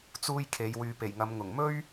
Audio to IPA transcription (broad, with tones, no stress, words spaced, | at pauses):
t͡suː˥jkʰe˨˧j wyː˨pe˨˩jŋɐ˨˧m ŋʊ˨˩ŋmɵ˥ɥ